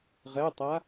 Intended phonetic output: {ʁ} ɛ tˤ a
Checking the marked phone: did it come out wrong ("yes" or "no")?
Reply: no